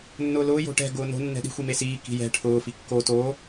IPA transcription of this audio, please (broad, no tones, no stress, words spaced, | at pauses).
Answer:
nːʊːlʊː jo̤ʈɛ̤ ɡʊːno̤ nːɛ̤ɗi̤ xʷimesiː ki̤jɛ̤ ʈʰʊː fikːo to